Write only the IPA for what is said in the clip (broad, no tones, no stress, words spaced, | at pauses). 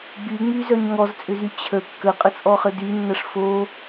ɡ͡byŋ͡myzœɲ ŋɔzt͡sʼʏzy t͡ɕʰə kːəqʼət͡sʼɔχə dynːɐʂ fo